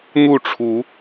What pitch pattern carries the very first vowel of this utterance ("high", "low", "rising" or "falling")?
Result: falling